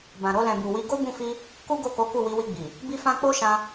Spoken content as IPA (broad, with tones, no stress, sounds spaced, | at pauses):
b ã˨ ɾ o˧ l ɛ̃˨ b u˨ w i˧ ɡ o˦ b ũ˦˨ f i˧ | k u˦ ɡ o˦˨ k o˨˦ k u˦˨ w i˨˦ w i˧ ɡ͡b i˨ | b i˦ f ã˦ k͡p o˦ ʃ ã˧